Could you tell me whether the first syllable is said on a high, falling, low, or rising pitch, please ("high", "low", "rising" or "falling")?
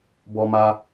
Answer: high